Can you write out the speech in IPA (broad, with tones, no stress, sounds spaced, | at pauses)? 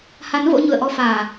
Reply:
h a˨˦ n v o̰˧˥ ɲ ṵ˧˨ ə̯ ʔ ɔ˧ f aː˨˩